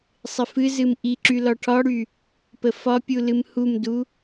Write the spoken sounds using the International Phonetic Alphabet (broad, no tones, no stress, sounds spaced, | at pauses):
sˤ ɪ f ɨ z ɨ m ʔ i ǁ y l ɒ ʈʰ ɒ ɽ y | p ə f ɒ pʲ u l ɨ m h u m d u